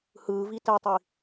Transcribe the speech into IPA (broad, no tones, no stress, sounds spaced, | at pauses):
h ɯː v i t ɛ tˤ i